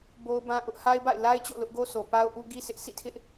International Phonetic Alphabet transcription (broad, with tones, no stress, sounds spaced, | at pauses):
b o˦ ʊ̯ b ã˦ ʔ ʊ˦ ʔ h a˦ ɪ̯ b a̰˦˨ ɪ̯ l a˦ ɪ̯ t͡ɕ o̰˦˨ l ʊ˦ ʔ ɡ o˦ sʰ o˨ p a˦ ʊ̯ ʔ u˦ ɡ i˦ s ɪ˦ ʔ s ḭ˦˨ tʰ ɪ˦ ʔ